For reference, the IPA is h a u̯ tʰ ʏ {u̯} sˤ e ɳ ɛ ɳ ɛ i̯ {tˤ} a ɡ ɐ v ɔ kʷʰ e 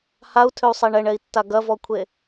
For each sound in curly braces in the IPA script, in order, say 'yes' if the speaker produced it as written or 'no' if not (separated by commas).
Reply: yes, no